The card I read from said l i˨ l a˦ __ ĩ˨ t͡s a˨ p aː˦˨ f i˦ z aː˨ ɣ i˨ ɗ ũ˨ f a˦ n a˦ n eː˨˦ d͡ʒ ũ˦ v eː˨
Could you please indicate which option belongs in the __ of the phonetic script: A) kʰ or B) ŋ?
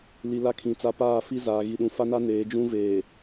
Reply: A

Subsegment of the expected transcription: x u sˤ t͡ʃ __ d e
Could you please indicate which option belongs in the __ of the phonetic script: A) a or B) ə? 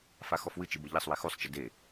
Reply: B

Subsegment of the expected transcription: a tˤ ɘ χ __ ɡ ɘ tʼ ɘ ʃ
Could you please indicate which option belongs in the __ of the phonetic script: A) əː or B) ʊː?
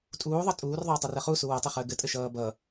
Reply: A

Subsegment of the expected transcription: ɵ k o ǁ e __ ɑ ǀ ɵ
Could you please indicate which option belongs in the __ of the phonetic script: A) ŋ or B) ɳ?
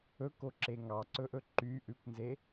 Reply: A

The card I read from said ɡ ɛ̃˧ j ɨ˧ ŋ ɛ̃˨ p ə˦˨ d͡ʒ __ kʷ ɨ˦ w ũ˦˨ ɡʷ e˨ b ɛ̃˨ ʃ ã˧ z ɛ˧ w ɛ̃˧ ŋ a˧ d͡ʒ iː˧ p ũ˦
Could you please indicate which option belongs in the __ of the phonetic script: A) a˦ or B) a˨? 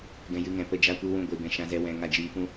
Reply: A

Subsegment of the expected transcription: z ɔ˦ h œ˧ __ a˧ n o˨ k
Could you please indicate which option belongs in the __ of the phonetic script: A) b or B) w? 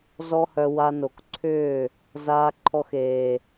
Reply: B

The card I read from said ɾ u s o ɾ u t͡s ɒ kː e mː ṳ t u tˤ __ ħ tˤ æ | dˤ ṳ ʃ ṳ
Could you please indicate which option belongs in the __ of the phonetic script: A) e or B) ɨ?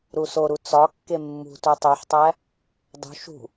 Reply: A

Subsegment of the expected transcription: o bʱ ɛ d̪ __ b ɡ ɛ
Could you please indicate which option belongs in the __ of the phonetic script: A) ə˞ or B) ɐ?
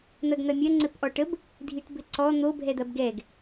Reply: B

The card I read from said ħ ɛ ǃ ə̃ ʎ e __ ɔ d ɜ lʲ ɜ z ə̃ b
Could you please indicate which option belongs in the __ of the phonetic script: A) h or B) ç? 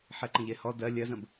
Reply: A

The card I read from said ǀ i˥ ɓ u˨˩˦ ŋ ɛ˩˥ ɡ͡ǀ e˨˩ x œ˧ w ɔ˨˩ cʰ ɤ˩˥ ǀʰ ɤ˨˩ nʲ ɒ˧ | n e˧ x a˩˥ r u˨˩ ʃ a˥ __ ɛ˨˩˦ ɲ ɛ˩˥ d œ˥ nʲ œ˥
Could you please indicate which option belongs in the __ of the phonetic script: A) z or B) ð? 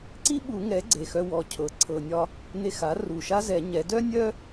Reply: A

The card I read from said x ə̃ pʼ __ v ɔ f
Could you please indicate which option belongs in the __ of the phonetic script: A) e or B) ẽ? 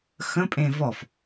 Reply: B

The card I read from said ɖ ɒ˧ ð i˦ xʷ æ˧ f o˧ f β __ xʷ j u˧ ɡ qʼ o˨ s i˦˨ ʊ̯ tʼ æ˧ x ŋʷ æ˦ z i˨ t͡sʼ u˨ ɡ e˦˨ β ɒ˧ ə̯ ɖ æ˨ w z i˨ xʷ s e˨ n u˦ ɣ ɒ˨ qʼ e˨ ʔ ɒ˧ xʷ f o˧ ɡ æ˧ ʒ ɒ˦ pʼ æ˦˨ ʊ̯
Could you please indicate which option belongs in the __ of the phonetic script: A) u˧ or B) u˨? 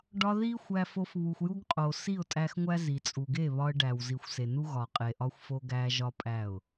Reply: B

